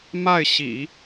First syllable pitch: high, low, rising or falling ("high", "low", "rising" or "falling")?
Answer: falling